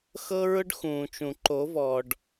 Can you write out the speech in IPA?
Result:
xɤ˦ɹʊ˦ɖ xũː˨t͡ʃũ˨ ǃo˨˦vɔː˨ɖ

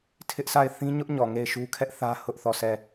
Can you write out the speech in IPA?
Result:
tʰɪ˦ʔsa˦˨ɪ̯ θĩ˦ɲʊ˦ʔɲɔ˨ ŋe˦˨ɪ̯ʃu˦ kʰɛ˦ʔθä˦ hʊ˦ʔθɔ˦˨sʰɛ˦˨

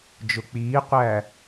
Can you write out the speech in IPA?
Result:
d͡ʒʊk͡piːqʷæ

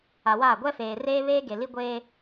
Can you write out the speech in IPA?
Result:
a˨waː˦˨ ɡʷɛ˦feː˨reː˦ βeː˦ɡe˨li˦ ɡʷeː˦

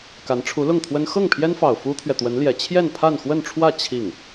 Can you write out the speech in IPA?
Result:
ka˧˥nʈ͡ʂʰu˧˥lʊ˥˩ŋt̪ʰwə˥n xɤ˥˩ŋpʰjɛ˥nfɑ˨˩ʊ̯ fu˥t̪ʰɥɛ˨t̪wə˧˥nljɛ˨˩ t͡ɕʰjɛ˥˧npʰa˥˧nxwə˥˧nʈ͡ʂʰwä˥˧ t͡ɕʰi˥˩ŋ

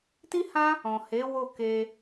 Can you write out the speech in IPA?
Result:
ti˦hã˦ | ɔ̃˨he˨˦ wo˦˨ke˧

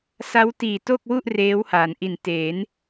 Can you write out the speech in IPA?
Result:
sa˦˥wtiː˨˩to˥˩k̚wu˥˩ʔ reː˦˥wha˩˦nʔi˨˩nte˩˦n

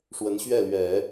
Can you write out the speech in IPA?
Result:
ʂwə˧˥nɕɥɛ˥˩ lɥɛ˨˩˦

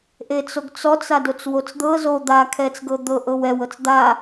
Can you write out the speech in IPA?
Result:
ʔet͡soɡt͡sɔt͡s adot͡swot͡sd̪ɤ zo d̪akʰɛt͡s ɡɤd̪ɤʔɤw ɛw ɤt͡sd̪a

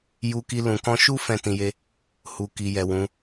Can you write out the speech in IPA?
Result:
ju˧ki˧ lũ˨kɔ̃˧ʃu˦ fɛ̃˦˨tĩ˧je˦ | hu˨ ki˨jɛ˨ wũ˨˦

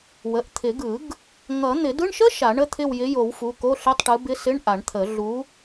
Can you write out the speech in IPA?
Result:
wə˩˧˩ʔ t̪ʰɪ˨˩˦ɡɯ˨˩˦ɡ | ŋʌ˨˩˦ n̪ɪ˨˩˦dɯ˧˥˧ɳʃə˥ ʃa˨˩˦ɳə˧˥˧t̪ʰɪ˦˨w jɪ˨˦jo˨˩˦wfu˩˧˩ ko˧˥˧ɬɪ˧˥˧tˤʈɯ˨˦ bɪ˧˥˧sɪ˧˥˧ɳʔa˨˩˦ɳt̪ʰə˨˩˦ ɮu˨˦

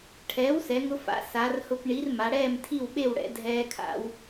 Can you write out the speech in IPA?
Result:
ʈʰɛː˩˥wsɛ˩˧ŋʊ˧fa̰˩˧ sa˩˧rhʊ˧pɳi˩˥r ma˩˧ɽɛː˥˨mtʰi˥˨wɓe˥˨w ɽɛ̰˩˧dʱɛː˧kʰa̰˧w

